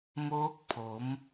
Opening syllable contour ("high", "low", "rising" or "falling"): rising